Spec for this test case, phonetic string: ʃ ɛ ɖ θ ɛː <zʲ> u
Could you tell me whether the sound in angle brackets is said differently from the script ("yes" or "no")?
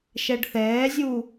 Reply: no